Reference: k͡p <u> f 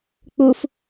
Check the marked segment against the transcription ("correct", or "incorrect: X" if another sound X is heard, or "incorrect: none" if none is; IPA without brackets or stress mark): correct